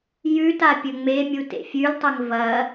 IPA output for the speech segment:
j ʉ t a pʲ ɵ ŋ͡m e mʲ u t ḛ fʲ ʉ l tˤ ɐ ŋ v ɐ

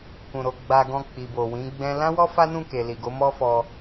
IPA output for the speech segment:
k ũ˨ ɾ o˨ ɡ͡b a˧ ɡ ɔ̃˧ k͡p i˨ b o˨ w ĩ˨˦ ɡ͡b ɛ̃˦ l ã˦ w ɔ˦ f a˦ n ũ˦˨ k e˨ l i˨ ɡ o˨˦ m ɔ˦ f ɔ˧

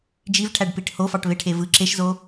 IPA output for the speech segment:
d͡ʒ i v ʈʰ æ ɖ p i ʈ h o f ɑ ʈ β e ʈʰ e v ɯ ǁ e ʃ z o

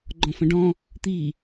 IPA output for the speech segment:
ɡ͡ǃ ɔ̃ f ə̃ ɖ ɔ̃ | t̪ i

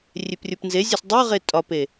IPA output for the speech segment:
rʲ e p rʲ o p n z e zʲ ɒ s dˤ o ʁ e tʼ ɒ p e

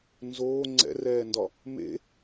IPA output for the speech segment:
n z oː ŋ͡ǀ ɛ̰ r ɛː n d ɒ | m ḛ

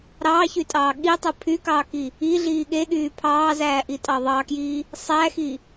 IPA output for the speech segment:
ɾ ɑː ç y tʼ ɑː ɠ i tˤ ɯ pʰ y k ɑː k i | i ɮ iː ɠ e ɠ yː pʰ ɑː z æː ʔ i tʼ ɑ ðˤ ɑ k j i | sˤ æ x i

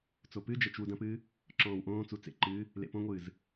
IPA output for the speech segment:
t͡s o p ɨ d͡ʒ ɐ t͡ʃ w u d ɐ̃ p ɨː | ǁ ɔ̃ː w ʔ õː t͡s u t͡s ḛ ǃ ɨː | l ḛ p õ ŋʷ ɨː z

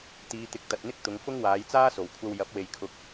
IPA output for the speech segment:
t̪ iː˨˧ t̪ ɪ˨˥ k̚ t̪ ɐ˨ t̚ n̪ ɪ˥ k̚ t̪ ʊ˨˧ ŋ f ʊ˥ ŋ w aː˨˧ j t͡s aː˥ s o˨˩ w kʷʰ ɐ˧ w j ɐ˨˥ p̚ w e˨ j kʰ ʊ˨ k̚

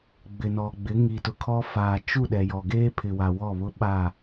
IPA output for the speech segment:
ɡ͡b ɪ˨ n ɔ˨ ɡ͡b ɪ˨˦ ŋ i˨ t ʊ˨ kʰ ɔ˦ f aː˨ t͡ʃ u˦˨ ɗ ɛ˨ j ɔ˨ ɡ eː˦ pʰ ɪ˨ w a˨ w ɔ˦˨ β ʊ˦ ɓ a˦˨

